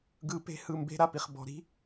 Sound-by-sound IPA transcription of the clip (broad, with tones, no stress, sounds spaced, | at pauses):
ɡ ɯ˦ p e̤˦ h ɯ˦˨ m b e̤˦ ɾ a˦ p i˨ χ b ɔ̤˨ ɾ i̤˦